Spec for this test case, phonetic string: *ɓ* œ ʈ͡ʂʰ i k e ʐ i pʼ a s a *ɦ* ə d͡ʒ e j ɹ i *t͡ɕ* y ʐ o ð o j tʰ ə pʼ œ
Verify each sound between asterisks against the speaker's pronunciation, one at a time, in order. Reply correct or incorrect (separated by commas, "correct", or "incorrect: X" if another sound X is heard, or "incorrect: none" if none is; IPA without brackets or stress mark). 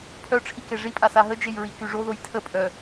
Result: incorrect: pʰ, correct, incorrect: k